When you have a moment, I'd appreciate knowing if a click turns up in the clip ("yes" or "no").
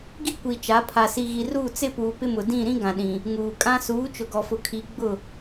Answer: no